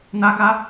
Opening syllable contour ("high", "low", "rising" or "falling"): high